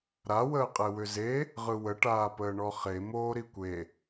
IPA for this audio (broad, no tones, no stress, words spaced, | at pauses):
ɾa wəːqʼewʏze | ʁɯwə ʈaːpəːɳɔχe moːɾikʷe